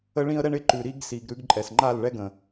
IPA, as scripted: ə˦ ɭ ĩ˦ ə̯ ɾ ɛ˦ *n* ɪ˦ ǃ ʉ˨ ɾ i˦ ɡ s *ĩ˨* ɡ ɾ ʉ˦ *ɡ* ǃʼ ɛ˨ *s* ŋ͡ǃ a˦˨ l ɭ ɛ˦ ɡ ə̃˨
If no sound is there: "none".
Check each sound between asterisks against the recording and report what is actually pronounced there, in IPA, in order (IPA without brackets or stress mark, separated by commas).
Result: ɳ, i˨, ɡ, s